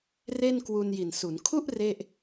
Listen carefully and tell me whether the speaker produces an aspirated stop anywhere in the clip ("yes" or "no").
yes